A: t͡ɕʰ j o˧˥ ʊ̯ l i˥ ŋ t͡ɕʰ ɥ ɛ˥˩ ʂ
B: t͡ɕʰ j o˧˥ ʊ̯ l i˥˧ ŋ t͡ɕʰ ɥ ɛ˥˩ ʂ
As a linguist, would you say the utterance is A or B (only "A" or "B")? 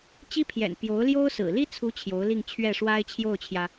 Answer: B